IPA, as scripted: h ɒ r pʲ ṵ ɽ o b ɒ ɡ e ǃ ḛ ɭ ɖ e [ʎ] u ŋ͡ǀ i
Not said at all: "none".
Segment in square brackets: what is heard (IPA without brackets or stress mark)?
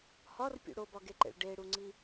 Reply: ɽ